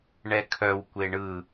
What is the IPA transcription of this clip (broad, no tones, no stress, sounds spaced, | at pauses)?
ɳ ɛ kʰ œ w kʷ e ɳ ɯ